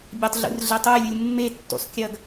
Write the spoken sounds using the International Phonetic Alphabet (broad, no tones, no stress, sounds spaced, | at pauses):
bʲ a tˤ ɮ ṵ r ɮ e tˤ u j lʲ u lʲ mː e tː ṵ sˤ kʲ ɐ ɡ